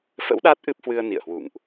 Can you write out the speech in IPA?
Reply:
f ə̰˧˥ w ɗ a˦˥ t̚ ʔ ɨ˦˥ p̚ h w ɨ˧ ə̯ n ḭ˧˨ ə̯ h w ṵ˧˨ ŋ ʔ

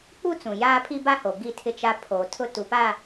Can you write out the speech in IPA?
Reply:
k͡p u˦ t͡s ũ˨ j aː˦ pʰ i˦ b a˦ h o˨ ɡ i˦˨ tʰ ɪ˦ t͡ʃ a˦ pʰ oː˨ tʰ ʊ˦ t u˨ p a˦˨

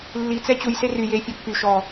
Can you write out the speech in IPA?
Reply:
lː i t͡s ɛ t͡ɕ u j s e r y j eː fʲ ɔ pː y ʃ ɔ

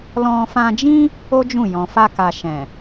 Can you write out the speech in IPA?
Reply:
l ɔ̃˧ f ã˧ d͡ʒ ĩ˦ | o˦ d͡ʒ ũ˦˨ j ɔ̃˨ f a˧ k a˨ ʃ ɛ̃˨

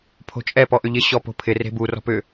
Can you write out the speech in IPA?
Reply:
pʰ o̤ t͡ʃʼ ɛ p ɔ ʔ ʏ ʎ ɪ ɕ ɔ p o̤ pʰ ɪ r e̤ b u r ɔ̤ p ʏ

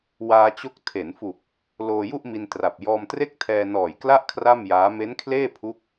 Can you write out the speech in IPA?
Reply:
w aː˧ t͡ɕ o˦˥ k̚ tʰ e˩˦ n f u˨˩ k̚ | l oː˧ j u˥˩ ʔ m i˧ n t r a˨˩ p̚ j ɔː˧ m t r e˥˩ k̚ tʰ ɛː˧ n ɔː˨˩ j k l a˥˩ ʔ kʰ r a˥˩ m j aː˦˥ m e˦˥ n kʰ l eː˥˩ pʰ u˦˥ k̚

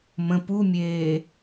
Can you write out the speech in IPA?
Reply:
m ə̃ p u mʲ eː

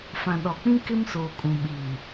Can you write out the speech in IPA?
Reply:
f ã˨ ɗ ɔ˨ k͡p ĩ˦ k ɪ˦ m s oː˨ kʼ ũ˨ ɓ iː˨

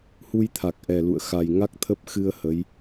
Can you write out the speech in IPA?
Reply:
h u˧ j t̪ʰ a˨˩ k̚ ʔ ɛ˨˩ l ṵ˧˨ ə̯ x a˨˩ j ŋ a˦˥ k̚ t̪ʰ ə˦˥ p̚ x ɨ˧ ə̯ h ə˨˦ j

